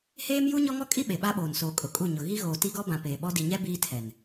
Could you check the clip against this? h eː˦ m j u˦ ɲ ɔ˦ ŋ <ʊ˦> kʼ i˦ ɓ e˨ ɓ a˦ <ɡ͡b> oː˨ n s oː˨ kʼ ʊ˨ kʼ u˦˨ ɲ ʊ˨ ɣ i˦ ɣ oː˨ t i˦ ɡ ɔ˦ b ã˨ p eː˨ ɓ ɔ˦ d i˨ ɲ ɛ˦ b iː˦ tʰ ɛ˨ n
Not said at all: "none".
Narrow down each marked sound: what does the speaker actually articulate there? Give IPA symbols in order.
ɔ˦, ɓ

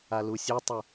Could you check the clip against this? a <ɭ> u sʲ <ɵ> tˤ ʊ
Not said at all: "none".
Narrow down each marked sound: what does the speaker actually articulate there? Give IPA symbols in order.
l, o

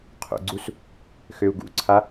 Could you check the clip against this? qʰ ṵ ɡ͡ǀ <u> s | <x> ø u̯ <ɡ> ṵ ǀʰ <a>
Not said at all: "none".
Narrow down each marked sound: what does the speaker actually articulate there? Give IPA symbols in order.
u, x, ɡ, a

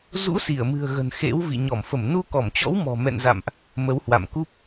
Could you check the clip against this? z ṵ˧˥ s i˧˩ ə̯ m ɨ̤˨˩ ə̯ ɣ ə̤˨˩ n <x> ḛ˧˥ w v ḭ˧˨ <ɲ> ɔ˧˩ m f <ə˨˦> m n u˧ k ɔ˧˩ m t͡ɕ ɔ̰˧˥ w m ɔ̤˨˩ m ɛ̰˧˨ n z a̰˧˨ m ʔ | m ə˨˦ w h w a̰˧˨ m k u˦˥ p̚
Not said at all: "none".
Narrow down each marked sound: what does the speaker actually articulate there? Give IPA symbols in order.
x, ɲ, ə˧˩

